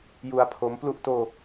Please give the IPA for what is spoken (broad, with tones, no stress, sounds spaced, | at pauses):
j u˧ a̯ pʰ o˦˥ m p l u˥˩ ʔ t oː˧